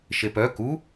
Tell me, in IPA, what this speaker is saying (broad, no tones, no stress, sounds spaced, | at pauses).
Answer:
ʃ e p œ k u